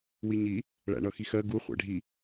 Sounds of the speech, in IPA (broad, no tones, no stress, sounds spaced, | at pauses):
w i ɲ i | ɭ æ̰ ɳ ʌ x i x ɜ ɡ u χʷ æ̰ ɖʱ i